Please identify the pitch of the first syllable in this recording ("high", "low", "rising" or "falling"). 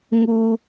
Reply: high